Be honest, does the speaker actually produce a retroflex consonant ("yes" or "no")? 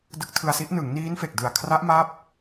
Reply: no